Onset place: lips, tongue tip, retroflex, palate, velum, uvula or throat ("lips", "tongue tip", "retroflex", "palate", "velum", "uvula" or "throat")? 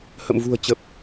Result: throat